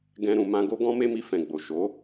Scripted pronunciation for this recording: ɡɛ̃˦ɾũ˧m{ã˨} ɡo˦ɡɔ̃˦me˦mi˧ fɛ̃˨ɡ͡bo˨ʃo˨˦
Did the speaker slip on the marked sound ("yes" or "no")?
yes